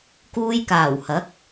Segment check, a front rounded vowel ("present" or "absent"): absent